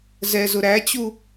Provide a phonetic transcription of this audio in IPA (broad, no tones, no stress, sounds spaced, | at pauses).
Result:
z ɛ z ʊ ɾ æ t͡ɕ u